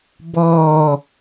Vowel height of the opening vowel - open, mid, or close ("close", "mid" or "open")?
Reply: mid